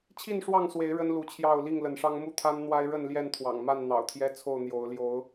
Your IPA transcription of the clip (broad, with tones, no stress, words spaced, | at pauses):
t͡ɕʰi˥˨nʂwɑ˥˨ŋswe˨˦ɪ̯ ɻə˦nlu˨˦t͡ɕʰjɑ˥˨ʊ̯ li˥˨ŋlə˨˦nʂɑ˦ŋ mu˥˨t̪ʰa˦n n̪wa˦ɪ̯ɻə˥˨n ljɛ˥˨nt̪ʰwɑ̰˨˩ŋ ma˥˨nn̪ɑ̰˨˩ʊ̯t̪ʰjɛ˦ t͡sʰo˥˨ʊ̯n̪jo˨˦ʊ̯ ljo˨˦ʊ̯